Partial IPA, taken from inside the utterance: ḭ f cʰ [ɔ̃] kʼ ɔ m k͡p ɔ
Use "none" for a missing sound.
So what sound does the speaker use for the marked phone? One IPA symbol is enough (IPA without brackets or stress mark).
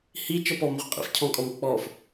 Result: ɔ̃